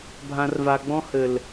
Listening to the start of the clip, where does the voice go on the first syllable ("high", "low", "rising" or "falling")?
low